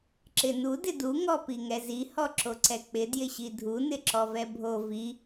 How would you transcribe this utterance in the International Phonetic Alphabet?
ǁ ɪ n u d ɪ d u ŋ ɔ p i ŋ ɛ z i h ɔ ǁ o ǀ ɛ k͡p ɪ d j ɪ ɕ i dʱ u n ɪ ǁ ɔ v ɛ bʱ o v i

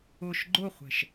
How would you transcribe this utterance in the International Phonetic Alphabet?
ʊ ʃ ɡ͡ǃ ʊ χʷ ɛ̤ ʃ

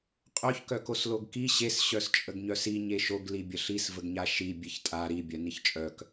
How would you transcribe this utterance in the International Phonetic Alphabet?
qʼ œ ç k œ k o s l o ɡ k i ɕ e s ɕ œ s t͡ʃʼ ə ɡ ɲ œ s i ɲ e ʃ o ɡ l i bʲ ə ɬ i s v ə ɡ ɲ a ʃ i bʲ e ç tʼ a ɾ i bʲ œ n i ç t͡ʃʼ œ k

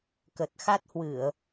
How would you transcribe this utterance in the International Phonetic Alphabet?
k ə˨˩ t̚ x a˦˥ t̚ h w ɨ˧˩˨ ə̯

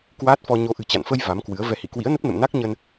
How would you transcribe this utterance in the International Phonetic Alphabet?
k w aː˦˥ t̚ f ɔ˧ ɲ o˨˦ ʔ ɨ̤˨˩ t͡ɕ a̰˧˨ n f ə˧ j v a˨˦ m k w ɨ˨˦ ə̯ v ɛ˨˦ h ḭ˧˨ k w ḭ˧˥ ə̯ n ə˦˥ p̚ n ə̰˧˨ m n a˦˥ k̚ ɲ ə˧ n

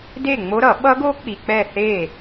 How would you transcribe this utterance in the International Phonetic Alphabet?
d e˥˨ ŋ͡m o˦˥ ɾ ʌ˨˩˦ ɓ ʌ˦˥ ɡ o˦˥ k͡p i˨ k͡p ɛ˥˨ θ e˥˨

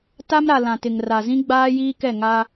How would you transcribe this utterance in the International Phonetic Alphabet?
t a˦ m ɾ a˨ l ã˨ t ɪ˨ ŋ r a˨ z ĩ˦ ɡ͡b aː˦ j iː˦ k ɛ˦˨ ŋ a˦

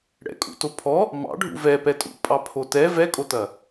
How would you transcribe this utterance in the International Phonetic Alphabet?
ɽ ɛ̰ kʼ ṵ t o pʰ ɔ | m ɑ̰ ɖʱ ṵ v ɛ p ɛ tʼ ṵ pʼ ɑ pʰ o t ɛ v ɛ kʼ o t ɐ

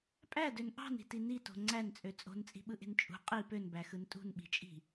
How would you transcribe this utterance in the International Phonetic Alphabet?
pʼ æ d ø n ʔ ɑ̤ n i̤ t i n i t o̤ ŋ͡ǀ æ n t͡sʼ ø t͡sʼ o̤ n t͡sʼ i̤ ɓ ɯ ʔ e̤ n t͡ʃʼ ṳ qʼ i p ø n b æ x ɯ n tʼ ṳ n ɓ i̤ t͡ʃʼ i̤

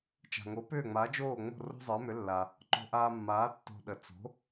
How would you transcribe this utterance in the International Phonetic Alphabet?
t͡ʃ a̤˩ ŋ o˩˥ p ʏː˥˩ ŋ͡m aː˩˥ d͡ʒ oː˥˩ ŋ͡m o̤˥˩ r o̤˥ zˤ əː˩˥ m ʏ˩˥ lː a˩ | ǃ o̤˧ ʔ aː˧ mː aː˩˥ tː o̤˧ ɗ ə˩ t͡s o̤˩˥

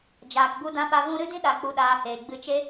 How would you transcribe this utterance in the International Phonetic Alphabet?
d͡ʒ aː˨ k ɡ u˧ d ã˧ p a˧ v ũ˦ ɾ ɨ˦ d ĩ˦ ɗ a˧ k͡p u˧ ɗ aː˧ h eː˨ ɡ͡b ɨ˧ t͡ʃ e˦

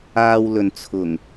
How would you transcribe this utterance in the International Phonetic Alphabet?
aː˧ w l ɵ˨ n t͡sʰ ʊ˨˩ ŋ

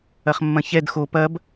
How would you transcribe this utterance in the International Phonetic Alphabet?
ɐ χ mː ɐ̃ ç ɛ d x o p ɐ b

